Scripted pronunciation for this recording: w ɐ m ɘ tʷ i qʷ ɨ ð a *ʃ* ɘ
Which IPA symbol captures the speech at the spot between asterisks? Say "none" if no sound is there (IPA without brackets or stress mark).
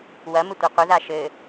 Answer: ʃ